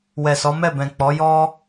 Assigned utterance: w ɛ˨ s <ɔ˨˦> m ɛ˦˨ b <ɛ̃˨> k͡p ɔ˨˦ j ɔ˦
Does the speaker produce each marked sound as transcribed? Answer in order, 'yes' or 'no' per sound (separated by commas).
yes, yes